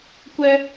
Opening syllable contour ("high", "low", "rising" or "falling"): high